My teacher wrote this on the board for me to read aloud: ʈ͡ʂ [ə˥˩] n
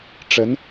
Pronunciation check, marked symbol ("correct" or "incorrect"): incorrect